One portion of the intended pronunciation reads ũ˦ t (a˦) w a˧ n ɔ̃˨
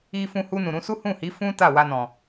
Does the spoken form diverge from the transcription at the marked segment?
yes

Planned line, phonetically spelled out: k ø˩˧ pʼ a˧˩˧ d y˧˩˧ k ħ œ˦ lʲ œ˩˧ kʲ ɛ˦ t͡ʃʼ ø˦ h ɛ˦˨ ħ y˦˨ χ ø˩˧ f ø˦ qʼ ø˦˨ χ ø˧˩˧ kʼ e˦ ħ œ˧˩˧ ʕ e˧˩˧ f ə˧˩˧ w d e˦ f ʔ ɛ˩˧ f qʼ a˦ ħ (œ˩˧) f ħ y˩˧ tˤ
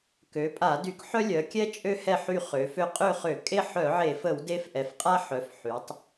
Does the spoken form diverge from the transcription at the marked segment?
no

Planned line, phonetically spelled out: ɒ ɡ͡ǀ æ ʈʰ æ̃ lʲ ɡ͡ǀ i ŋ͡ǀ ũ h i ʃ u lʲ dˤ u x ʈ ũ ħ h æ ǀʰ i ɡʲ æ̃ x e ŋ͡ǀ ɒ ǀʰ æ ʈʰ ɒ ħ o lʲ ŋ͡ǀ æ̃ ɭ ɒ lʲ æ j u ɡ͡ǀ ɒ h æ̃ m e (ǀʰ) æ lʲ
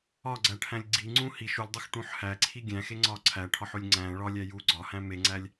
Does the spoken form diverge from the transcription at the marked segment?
yes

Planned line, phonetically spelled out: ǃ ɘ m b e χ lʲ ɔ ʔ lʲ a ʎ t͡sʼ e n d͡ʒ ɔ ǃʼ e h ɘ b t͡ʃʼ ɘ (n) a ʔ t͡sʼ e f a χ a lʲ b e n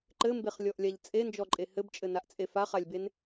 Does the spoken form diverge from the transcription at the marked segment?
no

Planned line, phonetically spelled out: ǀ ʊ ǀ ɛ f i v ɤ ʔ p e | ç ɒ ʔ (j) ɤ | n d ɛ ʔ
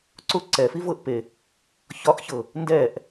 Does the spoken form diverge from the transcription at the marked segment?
yes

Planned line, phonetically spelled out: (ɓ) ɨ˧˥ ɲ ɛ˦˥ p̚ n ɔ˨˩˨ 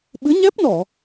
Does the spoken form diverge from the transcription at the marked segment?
no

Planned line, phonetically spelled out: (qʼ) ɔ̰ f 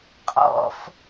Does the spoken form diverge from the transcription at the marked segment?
no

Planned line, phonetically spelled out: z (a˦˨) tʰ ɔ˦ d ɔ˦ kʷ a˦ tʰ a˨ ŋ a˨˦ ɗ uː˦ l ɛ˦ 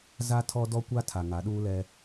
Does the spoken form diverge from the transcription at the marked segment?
yes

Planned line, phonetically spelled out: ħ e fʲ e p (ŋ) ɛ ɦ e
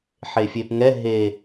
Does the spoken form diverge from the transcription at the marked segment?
no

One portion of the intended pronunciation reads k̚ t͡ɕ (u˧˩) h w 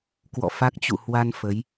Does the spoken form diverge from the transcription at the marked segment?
yes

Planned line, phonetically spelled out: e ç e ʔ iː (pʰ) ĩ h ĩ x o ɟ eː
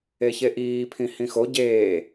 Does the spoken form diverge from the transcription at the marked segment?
no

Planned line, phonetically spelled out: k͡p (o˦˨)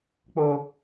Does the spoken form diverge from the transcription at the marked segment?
yes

